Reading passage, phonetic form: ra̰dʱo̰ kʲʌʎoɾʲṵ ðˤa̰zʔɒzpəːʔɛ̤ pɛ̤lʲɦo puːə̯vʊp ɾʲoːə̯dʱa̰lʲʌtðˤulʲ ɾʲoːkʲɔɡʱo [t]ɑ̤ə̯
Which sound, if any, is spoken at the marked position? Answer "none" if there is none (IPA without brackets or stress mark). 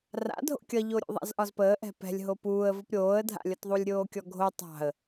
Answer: tˤ